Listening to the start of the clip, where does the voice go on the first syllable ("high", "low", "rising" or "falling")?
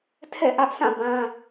falling